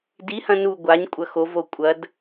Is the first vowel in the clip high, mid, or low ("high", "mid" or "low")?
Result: high